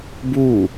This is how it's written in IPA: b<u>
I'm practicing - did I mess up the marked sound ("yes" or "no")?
no